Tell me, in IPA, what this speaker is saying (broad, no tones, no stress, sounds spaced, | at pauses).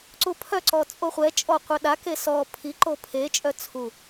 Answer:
ǀ u pʰ œ ǀ ɔ t͡sʼ o χʷ ɛ t͡ʃʼ ɔ qʷ œ ɗ a k e s ɔ pʰ i ǃ o pʰ e t͡ʃʼ œ t͡sʰ u